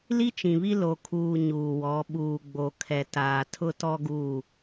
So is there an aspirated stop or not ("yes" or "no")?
yes